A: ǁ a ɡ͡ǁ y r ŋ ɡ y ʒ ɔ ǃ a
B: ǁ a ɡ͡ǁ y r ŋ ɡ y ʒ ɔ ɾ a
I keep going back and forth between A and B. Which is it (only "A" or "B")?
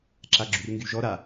B